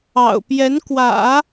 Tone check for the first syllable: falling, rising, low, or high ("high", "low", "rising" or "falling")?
low